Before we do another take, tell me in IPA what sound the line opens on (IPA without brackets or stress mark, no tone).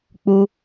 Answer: k͡p